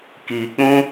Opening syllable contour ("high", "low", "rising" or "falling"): low